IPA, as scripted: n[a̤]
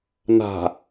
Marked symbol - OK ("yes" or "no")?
yes